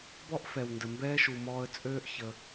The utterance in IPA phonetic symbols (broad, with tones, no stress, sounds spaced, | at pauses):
b ɔ˥ ʔ f ɛ˩ w n d ə˩ m b ɛː˥ ʃ u˩ m ɔː˧ ə̯ t͡sʼ øː˥ ʔ ç ə˩